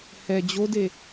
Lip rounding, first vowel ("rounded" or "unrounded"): unrounded